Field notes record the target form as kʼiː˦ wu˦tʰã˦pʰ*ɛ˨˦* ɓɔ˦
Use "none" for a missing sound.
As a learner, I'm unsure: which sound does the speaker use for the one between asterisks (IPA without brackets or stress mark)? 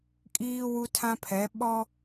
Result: ɛ˨˦